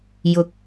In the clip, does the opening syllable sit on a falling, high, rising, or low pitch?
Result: rising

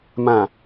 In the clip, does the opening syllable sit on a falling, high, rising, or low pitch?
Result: low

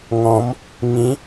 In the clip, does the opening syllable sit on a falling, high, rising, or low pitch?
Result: rising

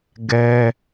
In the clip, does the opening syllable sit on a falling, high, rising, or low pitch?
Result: high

